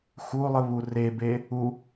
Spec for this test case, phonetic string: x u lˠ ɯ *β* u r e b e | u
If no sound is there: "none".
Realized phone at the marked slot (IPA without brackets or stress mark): β